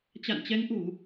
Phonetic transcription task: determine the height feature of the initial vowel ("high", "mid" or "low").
low